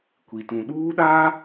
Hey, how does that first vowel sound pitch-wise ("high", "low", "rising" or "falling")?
low